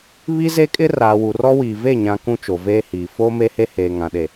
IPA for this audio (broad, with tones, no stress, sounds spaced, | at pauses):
β i˦ z e˦ kʼ ɪ˦ r aː˨ w u˨ r ɔ˦ w iː˨ v e˦˨ ɲ ã˨ k ũ˦ t͡ʃ o˨ v eː˦ h iː˨ f oː˦ m e˦ h e˦ h eː˨ ŋ ã˨ ɗ e˨